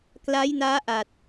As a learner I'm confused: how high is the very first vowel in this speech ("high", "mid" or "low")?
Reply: low